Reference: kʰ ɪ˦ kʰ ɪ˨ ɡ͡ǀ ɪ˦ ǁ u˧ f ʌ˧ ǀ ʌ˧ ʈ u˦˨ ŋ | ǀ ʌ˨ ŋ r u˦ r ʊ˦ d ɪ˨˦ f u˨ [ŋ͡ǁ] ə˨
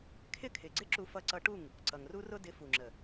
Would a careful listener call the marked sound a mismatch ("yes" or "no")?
no